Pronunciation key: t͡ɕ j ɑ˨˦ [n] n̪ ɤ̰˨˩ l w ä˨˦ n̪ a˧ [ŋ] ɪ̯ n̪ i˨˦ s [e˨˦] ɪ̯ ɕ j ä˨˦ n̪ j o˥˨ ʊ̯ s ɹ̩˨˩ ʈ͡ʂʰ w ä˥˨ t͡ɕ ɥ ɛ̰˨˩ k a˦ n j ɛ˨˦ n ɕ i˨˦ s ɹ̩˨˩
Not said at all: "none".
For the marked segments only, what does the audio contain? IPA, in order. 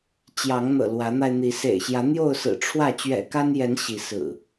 ŋ, none, ḛ˨˩

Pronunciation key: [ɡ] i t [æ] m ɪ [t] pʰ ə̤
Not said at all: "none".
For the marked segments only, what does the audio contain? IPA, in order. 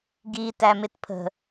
ɡ, æ, t

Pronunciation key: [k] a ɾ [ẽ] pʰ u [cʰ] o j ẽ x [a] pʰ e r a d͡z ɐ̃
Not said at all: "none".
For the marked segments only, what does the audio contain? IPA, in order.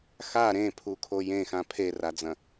x, ẽ, kʰ, ã

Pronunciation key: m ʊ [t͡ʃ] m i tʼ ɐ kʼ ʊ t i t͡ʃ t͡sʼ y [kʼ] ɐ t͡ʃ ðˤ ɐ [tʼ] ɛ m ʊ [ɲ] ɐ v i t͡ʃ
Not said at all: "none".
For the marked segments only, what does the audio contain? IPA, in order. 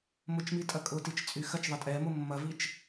t͡ʃ, x, tʼ, mː

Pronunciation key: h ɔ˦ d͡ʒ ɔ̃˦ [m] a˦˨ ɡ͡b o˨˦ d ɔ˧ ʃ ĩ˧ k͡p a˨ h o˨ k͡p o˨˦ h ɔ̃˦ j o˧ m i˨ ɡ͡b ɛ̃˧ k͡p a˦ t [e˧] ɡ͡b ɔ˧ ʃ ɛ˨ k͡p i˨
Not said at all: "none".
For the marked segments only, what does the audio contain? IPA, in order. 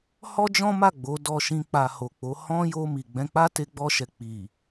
m, e˧

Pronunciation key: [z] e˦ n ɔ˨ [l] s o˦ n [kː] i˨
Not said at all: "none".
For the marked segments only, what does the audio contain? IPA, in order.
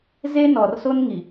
z, r, ŋ

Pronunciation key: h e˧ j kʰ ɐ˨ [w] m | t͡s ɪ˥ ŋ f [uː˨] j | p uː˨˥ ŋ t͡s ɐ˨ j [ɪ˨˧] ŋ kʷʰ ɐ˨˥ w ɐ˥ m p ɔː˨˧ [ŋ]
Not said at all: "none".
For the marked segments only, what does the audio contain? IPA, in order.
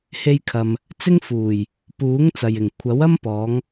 none, uː˨˩, ɪ˨˩, ŋ

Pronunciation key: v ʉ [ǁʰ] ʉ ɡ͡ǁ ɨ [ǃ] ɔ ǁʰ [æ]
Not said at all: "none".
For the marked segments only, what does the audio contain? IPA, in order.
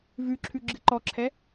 ǁʰ, ǃ, ɛ

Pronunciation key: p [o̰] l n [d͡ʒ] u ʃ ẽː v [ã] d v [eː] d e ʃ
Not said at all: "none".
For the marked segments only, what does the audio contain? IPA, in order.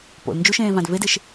o̰, d͡ʒ, ã, e

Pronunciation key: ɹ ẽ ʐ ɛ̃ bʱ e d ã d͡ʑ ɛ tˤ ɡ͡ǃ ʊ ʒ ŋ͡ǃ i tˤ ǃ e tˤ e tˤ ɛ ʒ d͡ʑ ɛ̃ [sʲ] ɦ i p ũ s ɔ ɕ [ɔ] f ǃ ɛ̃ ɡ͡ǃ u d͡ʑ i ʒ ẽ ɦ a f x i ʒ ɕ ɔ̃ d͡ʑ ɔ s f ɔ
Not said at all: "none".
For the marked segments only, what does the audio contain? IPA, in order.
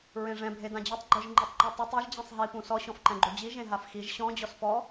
sˤ, ɔ̃

